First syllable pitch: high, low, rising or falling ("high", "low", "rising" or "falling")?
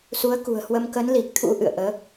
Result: rising